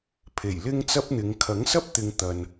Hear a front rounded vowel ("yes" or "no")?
no